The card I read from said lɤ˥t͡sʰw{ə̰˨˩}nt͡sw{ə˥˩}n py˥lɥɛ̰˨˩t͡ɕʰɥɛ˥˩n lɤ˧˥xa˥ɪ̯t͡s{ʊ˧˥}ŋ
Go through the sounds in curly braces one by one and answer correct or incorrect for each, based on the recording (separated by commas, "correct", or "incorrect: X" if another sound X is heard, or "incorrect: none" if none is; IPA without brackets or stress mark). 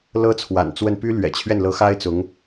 incorrect: a̰˨˩, correct, correct